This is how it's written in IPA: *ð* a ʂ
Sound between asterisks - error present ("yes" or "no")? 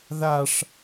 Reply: no